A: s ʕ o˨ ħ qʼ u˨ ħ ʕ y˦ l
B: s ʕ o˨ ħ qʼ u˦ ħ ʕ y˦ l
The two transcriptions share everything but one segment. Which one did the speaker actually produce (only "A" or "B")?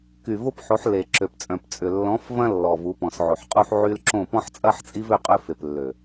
B